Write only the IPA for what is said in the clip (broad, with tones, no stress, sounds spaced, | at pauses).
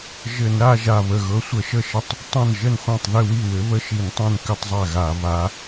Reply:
ʒ ɘ˧˩˧ n ɾ a˥˧ ʒ a˧˩ β ə˧˩ ɣ ɤ˨˥ sʷ ə˧˩˧ ʃ ə˥˩ ʃ ə˥˩ tˤ | tˤ ã˥˩ n ʒ ə˥˩ n χʷ ã˥˩ tˤ ð ɘ˥˧ w i˥˩ w ɘ˨˥ β ə˥ ʃ i˧˩˧ n tˤ õ˥˩ n k ɘ˥˧ tˤ zˤ a˥˩ ɣ a˧˩˧ β a˨˥